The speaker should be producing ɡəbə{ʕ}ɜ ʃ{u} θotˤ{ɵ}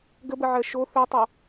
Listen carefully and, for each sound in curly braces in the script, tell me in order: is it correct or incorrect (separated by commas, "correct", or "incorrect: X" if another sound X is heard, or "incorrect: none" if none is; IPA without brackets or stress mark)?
correct, incorrect: o, incorrect: o